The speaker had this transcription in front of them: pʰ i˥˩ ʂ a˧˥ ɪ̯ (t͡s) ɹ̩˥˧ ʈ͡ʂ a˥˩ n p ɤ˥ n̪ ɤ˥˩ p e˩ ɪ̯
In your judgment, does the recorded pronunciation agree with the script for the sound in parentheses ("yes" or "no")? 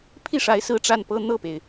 no